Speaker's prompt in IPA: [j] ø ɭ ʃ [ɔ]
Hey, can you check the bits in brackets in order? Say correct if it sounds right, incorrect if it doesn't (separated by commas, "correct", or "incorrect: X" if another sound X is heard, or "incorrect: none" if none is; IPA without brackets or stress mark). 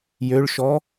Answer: correct, correct